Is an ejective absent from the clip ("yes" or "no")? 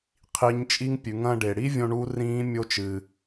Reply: no